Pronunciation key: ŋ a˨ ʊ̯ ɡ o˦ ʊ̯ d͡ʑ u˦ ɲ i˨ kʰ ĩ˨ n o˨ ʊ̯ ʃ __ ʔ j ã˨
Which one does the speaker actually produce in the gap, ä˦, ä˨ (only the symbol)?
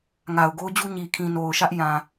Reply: ä˦